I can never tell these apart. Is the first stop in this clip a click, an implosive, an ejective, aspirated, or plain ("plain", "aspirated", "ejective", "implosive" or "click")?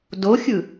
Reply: plain